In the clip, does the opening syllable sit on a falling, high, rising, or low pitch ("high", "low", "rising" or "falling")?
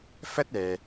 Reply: high